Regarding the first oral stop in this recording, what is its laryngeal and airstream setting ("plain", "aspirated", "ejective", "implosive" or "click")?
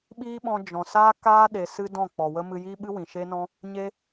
implosive